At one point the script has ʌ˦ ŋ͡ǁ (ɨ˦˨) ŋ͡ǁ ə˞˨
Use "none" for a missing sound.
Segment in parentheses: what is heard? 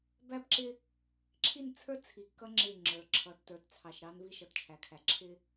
ɪ˦˨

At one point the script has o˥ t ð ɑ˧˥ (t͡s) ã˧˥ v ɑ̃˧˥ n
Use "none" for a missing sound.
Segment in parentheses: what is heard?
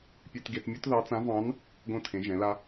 t͡s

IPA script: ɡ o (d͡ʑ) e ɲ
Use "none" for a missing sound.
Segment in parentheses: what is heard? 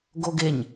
ɡ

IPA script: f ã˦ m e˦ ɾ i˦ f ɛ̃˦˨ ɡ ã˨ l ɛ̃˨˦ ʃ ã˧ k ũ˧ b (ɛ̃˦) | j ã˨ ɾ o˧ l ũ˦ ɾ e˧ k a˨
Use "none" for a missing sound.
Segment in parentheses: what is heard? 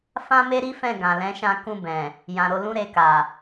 ɛ̃˨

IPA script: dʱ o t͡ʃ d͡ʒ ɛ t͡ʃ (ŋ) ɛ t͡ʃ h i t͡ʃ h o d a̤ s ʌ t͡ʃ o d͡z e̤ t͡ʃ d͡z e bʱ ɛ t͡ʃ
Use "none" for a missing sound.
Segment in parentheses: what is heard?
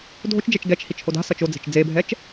ɡ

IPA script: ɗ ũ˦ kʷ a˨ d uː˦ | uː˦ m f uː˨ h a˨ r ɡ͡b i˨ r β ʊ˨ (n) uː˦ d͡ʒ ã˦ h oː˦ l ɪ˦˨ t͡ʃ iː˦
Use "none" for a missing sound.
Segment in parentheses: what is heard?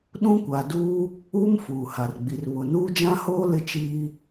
n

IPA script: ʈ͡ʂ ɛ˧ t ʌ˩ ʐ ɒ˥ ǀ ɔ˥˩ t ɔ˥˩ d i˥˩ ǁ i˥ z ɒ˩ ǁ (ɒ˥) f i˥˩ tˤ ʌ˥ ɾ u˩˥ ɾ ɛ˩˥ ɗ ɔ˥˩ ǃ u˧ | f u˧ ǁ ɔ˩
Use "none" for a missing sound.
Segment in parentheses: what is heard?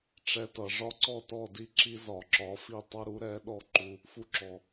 ɒ˩˥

